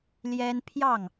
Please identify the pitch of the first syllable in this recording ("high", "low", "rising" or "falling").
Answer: high